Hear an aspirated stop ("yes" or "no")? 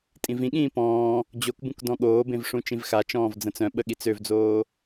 no